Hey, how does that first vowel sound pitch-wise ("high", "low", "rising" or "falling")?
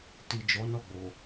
low